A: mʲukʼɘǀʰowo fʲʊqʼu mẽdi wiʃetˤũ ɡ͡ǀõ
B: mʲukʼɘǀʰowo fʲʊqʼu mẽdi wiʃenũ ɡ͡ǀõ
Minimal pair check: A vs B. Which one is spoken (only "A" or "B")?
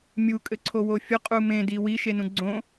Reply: B